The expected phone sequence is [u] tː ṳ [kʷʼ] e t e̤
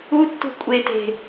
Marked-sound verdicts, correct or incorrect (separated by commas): correct, correct